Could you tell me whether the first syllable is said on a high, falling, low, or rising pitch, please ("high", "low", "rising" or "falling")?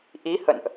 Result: rising